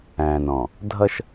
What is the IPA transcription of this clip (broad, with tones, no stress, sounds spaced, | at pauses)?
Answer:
æ̃ː˨ n ɔ̃˨ | dʱ ʌ˦ ʃ